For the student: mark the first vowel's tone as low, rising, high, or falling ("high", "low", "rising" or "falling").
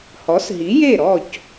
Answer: rising